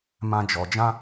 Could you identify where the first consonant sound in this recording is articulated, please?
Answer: labial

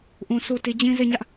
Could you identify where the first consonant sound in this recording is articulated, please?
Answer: glottal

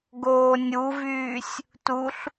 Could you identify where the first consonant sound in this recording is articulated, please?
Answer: velar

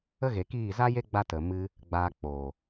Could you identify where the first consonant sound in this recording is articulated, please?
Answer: velar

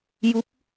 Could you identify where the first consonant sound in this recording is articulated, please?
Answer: palatal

